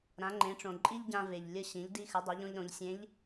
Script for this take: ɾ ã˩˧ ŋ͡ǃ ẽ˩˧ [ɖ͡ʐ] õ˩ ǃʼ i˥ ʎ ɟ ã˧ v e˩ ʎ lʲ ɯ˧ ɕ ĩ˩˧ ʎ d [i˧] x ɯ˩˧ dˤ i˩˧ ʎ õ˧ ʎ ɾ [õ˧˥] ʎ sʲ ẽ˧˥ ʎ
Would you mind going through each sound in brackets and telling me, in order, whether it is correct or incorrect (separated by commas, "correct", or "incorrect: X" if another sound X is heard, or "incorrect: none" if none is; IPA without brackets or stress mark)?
incorrect: ʈ͡ʂ, correct, incorrect: õ˩˧